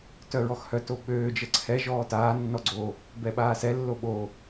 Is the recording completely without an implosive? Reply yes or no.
no